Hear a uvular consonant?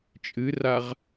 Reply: yes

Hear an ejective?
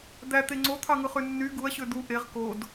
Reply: no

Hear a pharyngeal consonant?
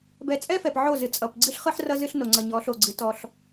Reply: yes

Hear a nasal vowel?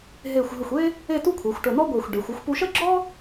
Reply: no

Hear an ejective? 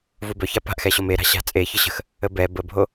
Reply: yes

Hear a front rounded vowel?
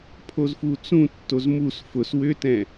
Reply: yes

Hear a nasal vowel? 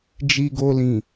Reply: yes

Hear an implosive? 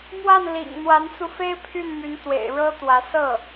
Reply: no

